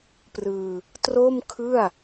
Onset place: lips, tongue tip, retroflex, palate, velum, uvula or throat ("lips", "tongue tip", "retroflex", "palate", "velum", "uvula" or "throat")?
lips